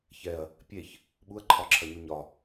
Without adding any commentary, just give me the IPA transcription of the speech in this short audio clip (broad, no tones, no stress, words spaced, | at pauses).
çɛɐ̯ | pʲeç | ɓuɐ̯ǃʰɒǁʰɐɲu ɲɒ